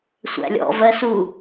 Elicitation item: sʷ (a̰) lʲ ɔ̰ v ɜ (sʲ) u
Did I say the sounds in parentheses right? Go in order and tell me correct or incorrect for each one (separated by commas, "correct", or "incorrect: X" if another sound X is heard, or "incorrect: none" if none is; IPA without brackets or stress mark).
incorrect: æ̰, incorrect: s